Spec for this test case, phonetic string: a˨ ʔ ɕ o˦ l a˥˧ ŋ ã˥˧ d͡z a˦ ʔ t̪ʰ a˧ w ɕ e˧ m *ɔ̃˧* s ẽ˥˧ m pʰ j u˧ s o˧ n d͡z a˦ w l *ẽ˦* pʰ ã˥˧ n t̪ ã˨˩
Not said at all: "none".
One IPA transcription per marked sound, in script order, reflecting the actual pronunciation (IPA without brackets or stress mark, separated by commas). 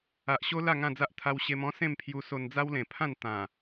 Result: ɔ̃˦, ẽ˨˩